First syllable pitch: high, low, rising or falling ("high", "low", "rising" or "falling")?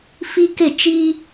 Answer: high